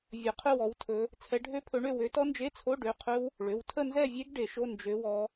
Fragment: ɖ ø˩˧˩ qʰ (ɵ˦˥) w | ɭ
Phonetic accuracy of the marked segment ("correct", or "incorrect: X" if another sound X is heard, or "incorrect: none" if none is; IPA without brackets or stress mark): correct